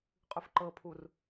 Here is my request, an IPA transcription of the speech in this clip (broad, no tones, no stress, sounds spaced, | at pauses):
qʼ ʉ f ǃ ɤ pʰ u r